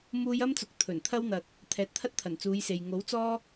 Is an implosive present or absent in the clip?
absent